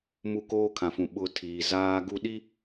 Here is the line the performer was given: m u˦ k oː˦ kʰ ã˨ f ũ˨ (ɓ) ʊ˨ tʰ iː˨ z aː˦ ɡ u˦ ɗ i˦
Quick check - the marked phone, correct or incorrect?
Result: correct